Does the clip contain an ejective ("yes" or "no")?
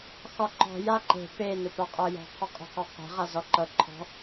yes